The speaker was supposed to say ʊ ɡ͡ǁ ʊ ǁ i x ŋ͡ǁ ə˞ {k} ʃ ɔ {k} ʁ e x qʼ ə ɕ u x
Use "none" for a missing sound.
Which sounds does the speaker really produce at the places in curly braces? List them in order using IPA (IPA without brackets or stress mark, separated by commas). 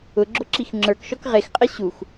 k, k